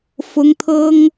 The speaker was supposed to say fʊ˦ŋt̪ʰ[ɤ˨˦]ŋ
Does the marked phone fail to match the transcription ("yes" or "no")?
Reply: yes